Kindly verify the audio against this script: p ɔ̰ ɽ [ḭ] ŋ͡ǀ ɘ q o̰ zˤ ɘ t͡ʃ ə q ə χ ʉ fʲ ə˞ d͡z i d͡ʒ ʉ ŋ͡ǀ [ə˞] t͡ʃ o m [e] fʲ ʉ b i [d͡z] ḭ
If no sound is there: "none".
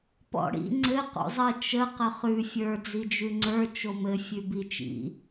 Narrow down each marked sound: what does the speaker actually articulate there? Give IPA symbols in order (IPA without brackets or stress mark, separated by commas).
ḭ, ə˞, ɘ, t͡ʃ